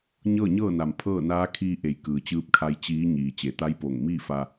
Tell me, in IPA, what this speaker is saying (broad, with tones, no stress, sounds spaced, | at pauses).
ɲ ɤː˥˨ ɲ ɤː˥˨ n a˩ m pʰ ɤː˥˨ n aː˧˥ kʰ iː˧ ʔ e˩˧ j k ɯː˩ t͡ɕ ɯː˧ p̚ kʰ a˧ j t͡ɕ iː˧˥ ɲ iː˩ t͡ɕ e˩˧ t̪ a˧˥ j p o˧˩ ŋ m iː˥˨ f a˧